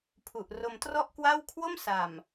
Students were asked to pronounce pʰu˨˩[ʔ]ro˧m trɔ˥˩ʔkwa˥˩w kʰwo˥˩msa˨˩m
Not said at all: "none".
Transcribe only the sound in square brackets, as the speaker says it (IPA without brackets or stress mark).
ʔ